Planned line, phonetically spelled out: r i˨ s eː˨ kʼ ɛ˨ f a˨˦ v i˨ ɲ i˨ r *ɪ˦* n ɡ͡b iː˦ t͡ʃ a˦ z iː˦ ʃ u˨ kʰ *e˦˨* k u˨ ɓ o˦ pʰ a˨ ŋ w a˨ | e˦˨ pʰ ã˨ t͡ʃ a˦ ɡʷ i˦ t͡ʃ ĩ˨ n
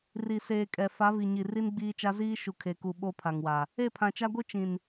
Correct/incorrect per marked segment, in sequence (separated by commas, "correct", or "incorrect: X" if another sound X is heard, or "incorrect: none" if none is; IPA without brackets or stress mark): incorrect: i˦, incorrect: e˨